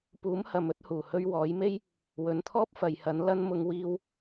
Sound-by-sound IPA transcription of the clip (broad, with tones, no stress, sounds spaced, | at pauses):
p uː˨˥ m h ɐ˨ m ɵ˧ t̚ h uː˨˩ h ɵ˧ ɥ w ɔː˨˥ j m e˥ j | w ɵ˨˧ n t̪ʰ ɔː˥ p̚ f ɐ˨ j h ɐ˨˥ n l ɐ˧ n m ʊ˨˧ ŋ w iː˧ w